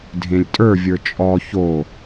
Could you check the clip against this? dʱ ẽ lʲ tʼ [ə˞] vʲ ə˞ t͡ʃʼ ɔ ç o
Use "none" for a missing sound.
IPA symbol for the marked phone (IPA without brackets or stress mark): ə˞